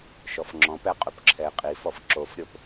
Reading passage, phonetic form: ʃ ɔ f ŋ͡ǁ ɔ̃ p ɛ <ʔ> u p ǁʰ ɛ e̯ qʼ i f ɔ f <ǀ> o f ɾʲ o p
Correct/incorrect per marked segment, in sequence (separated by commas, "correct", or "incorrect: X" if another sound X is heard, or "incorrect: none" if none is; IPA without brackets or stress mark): incorrect: qʼ, incorrect: ǁ